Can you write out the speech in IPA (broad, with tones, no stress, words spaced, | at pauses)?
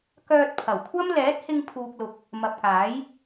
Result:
kœː˧t̚pʰɐ˨˩wkʷʰɐ˥m lɛː˨˥t̚hɪ˧ŋ pʰuː˧k̚lʊ˧k̚ | mɐ˨p̚kaː˨˥j